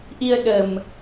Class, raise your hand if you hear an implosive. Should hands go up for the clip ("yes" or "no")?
yes